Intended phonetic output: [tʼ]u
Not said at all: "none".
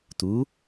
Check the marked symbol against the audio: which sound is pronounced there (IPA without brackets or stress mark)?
t